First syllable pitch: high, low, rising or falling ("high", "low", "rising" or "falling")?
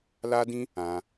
high